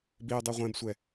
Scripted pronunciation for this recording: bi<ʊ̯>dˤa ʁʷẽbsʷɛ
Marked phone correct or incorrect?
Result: correct